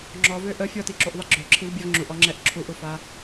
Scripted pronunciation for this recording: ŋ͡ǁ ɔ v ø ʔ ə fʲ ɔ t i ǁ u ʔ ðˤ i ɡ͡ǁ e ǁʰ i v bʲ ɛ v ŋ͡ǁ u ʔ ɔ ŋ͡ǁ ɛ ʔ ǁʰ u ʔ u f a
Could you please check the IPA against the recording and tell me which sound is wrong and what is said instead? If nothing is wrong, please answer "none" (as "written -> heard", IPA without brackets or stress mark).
e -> ø